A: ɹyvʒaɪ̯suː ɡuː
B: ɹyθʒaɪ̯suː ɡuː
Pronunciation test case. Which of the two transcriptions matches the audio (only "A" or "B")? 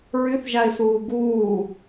B